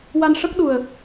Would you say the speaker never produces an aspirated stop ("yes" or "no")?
yes